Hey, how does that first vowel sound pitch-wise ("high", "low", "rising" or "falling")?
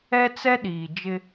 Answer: high